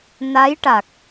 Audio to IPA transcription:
n a˧˥ j ʈ a˨˩ k̚

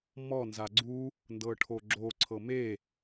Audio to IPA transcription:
m ɔ n z a ɡ͡ǀ u | n d ɤ ʈʰ o ɡ͡ǁ o ǀʰ ɤ m e

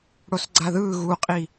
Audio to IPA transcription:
ɽ o s ɡ͡ǀ a ð ɯː ɣ u qʼ i

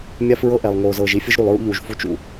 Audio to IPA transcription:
mʲ a˦ f ɹ ɤ˦ ʔ ɛ˨ lˠ ŋ oː˨ z ɤː˨ ʒ i˦ fʲ ɯ˦ ʒ ɾ u˨ lˠ ɹ ṵ˦ ʎ uː˨ ʒ f u˦ t͡ʃ ṵ˨

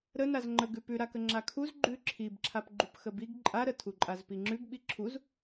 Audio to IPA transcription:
ɾ ə n a z ŋ͡ǃ ə ɡ ʉ p ʉ ɾ a k ə ŋ͡ǁ a kʰ u z ɡ͡ǃ ʉ ǁʰ i b ǁʰ a p ɡ͡ǃ u p x ə b i ɡ ǃʼ a ɾ ə tʰ u ǃʼ a z p i ŋ͡ǁ ʉ ɡ ɓ i ǁʰ u z

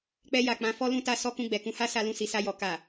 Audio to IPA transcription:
k͡p ɛ˧ j a˨ k͡p ã˨˦ f ɔ˦ l ũ˦ t a˦ s ɔ˦ k ũ˧ ɡ͡b ɛ˨ k ũ˨˦ h a˦ s a˧ l ũ˧ s i˨ s a˧ j ɔ˨ k a˨

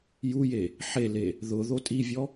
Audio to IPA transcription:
j u j e | ħ e l e | ð ʊ ð o tʼ i vʲ ɔ

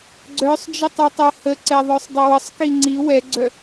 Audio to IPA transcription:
ɡ͡ǀ œ sˤ d͡ʒ ə tˤ œ tˤ ɛ h ə ǀ ɛ ðˤ œ sˤ dˤ ə w ə sˤ k i ŋ͡ǀ i w ɛ ɡ͡ǀ œ

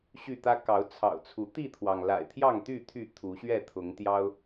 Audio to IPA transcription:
ɕ y˥˨ t̪ ä˦ k ɑ˨˦ ʊ̯ t͡sʰ ɑ̰˨˩ ʊ̯ t͡sʰ u˨˦ t̪ i˥˨ t̪ʰ w ɑ˩ ŋ l a̰˨˩ ɪ̯ t̪ʰ j ɑ˥˨ ŋ t̪ y˥˨ t̪ʰ y˥˨ t̪ʰ u˨˦ ɕ ɥ ɛ˥˨ t̪ʰ ʊ˨˦ ŋ t̪ j ɑ˦ ʊ̯

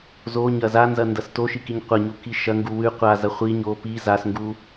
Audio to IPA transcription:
z o ɲ ɐ z a n z ɐ n d ɐ s t o ʃ i k i ɲ qʷ ɐ ɲ u k i ʃ ɐ ŋ ɡ u w ʉ qʷ a z ɐ χʷ i ɲ o p i z a s ŋ ɡ u

